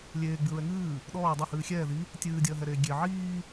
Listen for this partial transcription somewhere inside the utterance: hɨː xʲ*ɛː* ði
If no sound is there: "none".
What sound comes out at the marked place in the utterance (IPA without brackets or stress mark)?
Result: ɛː